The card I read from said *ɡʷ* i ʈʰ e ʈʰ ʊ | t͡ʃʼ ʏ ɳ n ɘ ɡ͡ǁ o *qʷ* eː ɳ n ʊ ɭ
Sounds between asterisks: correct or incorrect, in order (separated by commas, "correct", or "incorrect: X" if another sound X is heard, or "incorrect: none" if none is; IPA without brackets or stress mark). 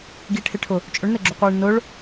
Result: incorrect: ɡ, correct